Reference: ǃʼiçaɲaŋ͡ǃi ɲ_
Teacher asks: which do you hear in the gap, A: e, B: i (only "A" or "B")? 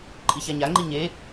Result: A